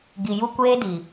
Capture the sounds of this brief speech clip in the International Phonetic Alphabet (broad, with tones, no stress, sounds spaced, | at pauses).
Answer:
ɡ i˨ j u˦ kʷ eː˦ d i˨